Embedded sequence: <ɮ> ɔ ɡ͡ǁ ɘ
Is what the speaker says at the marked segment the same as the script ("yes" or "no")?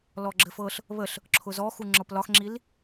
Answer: no